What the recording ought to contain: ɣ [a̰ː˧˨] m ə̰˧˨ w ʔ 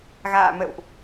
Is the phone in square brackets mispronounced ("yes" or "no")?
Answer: no